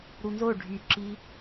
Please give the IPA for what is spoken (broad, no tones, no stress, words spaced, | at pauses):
ɾunzo ɖʱyǁi